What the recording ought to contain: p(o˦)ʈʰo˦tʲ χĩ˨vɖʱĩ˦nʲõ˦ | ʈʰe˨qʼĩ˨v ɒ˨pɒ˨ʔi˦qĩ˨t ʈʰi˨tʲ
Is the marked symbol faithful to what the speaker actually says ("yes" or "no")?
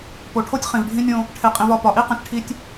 no